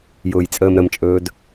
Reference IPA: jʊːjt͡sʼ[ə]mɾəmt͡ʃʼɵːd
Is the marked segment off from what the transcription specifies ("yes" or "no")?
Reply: yes